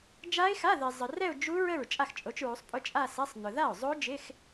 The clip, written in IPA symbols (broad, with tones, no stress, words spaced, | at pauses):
d͡ʒa˦˥ɪ̯xa˧˥˧ðɪ˨ zˤə˨ rɛ˥˧ʊ̯d͡ʒu˦˥ ɹə˥˩ɹ t͡ʃʼa˥˩xt͡ʃʼo˨˦t͡ʃɹu˨˦sˤpʼʊ˧˥˧ t͡ʃʼa˥˧sɛ˧˥˧sˤnʊ˨ ða˥˩ʊ̯zˤo˦˥ d͡ʒɪ˧˥˧x